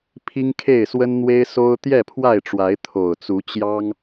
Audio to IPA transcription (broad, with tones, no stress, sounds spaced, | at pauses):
pʰ i˦ ŋ kʰ e˥˨ ɪ̯ s w ə˦ n n̪ w e˦ ɪ̯ s o˦ ʊ̯ t̪ j ɛ˥˨ pʰ w a˥˨ ɪ̯ ʈ͡ʂ w a˨˦ ɪ̯ t̪ʰ o˨˩ ʊ̯ t͡s u˨˦ t͡ɕ j ɑ˦ ŋ